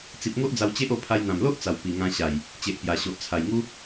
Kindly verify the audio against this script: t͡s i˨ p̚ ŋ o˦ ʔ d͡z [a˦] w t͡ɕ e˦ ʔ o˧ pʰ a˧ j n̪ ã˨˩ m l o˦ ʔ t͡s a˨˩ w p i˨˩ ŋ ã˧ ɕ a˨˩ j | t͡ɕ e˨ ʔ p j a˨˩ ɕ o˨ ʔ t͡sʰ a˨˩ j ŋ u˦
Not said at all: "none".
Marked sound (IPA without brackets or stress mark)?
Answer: a˧